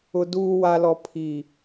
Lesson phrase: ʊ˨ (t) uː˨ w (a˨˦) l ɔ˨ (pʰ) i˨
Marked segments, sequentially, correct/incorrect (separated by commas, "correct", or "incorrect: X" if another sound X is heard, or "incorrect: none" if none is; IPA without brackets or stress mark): incorrect: d, incorrect: a˨, correct